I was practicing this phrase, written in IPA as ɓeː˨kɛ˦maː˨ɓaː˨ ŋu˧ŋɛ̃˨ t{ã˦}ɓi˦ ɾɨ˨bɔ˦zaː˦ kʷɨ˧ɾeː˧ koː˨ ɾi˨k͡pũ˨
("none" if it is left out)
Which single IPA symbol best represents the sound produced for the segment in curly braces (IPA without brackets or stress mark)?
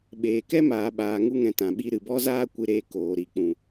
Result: ã˨